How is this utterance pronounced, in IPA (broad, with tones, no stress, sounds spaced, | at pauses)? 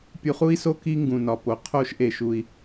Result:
pʲ u˧ χ u˥ i̯ s o˥ k i˥ ŋ ɡ ũ˩ n ɒ˩ p o˩ qʰ o˧ ʃ ʔ e˩ ʃ u˩ i̯